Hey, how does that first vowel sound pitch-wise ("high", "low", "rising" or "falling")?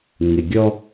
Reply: low